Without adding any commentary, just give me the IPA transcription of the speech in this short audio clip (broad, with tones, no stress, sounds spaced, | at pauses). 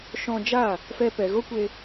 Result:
ʃ ɔ̃˧ d͡ʒ a˦˨ | f ɛ˧ p ɛ˨ ɣ o˦ kʷ e˧